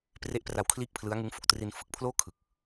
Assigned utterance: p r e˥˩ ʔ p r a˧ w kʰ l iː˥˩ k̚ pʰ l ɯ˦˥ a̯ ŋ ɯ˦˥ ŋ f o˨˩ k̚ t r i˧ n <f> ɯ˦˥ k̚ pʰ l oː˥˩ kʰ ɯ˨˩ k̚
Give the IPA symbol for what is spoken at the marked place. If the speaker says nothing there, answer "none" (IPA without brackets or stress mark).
f